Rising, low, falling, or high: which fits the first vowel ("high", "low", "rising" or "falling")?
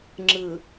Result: low